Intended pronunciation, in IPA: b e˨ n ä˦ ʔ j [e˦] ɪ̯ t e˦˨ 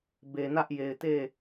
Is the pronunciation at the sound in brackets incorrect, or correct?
incorrect